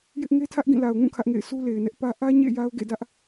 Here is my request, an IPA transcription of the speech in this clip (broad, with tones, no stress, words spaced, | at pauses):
jɪ˦ʔ ŋe˦tʰä˦ʔɡĩ˦˨ la˨ʊ̯ŋũ˦˨ kʰä˦ʔŋḛ˦˨ɪ̯ sʰu˦le˨ɪ̯nɛ˦ʔ pä˦ ʔä˦ ɲḛ˦˨ ja˦ʊ̯ɡḛ˦˨dä˦ʔ